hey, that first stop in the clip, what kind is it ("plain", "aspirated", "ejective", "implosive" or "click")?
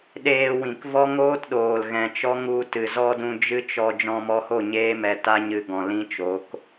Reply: implosive